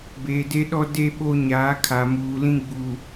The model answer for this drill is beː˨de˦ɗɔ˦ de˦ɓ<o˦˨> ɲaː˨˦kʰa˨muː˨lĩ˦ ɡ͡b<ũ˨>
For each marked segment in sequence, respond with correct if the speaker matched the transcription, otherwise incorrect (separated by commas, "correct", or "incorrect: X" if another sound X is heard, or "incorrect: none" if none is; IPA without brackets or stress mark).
incorrect: o˦, incorrect: u˨